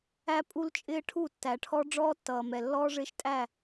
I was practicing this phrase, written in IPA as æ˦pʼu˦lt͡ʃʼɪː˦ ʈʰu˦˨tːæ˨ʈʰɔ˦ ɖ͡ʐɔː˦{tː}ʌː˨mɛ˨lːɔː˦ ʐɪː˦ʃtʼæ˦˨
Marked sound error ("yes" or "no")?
no